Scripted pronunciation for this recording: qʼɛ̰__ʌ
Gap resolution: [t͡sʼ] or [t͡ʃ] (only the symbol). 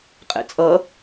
t͡sʼ